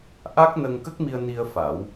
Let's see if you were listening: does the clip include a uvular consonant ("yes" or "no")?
no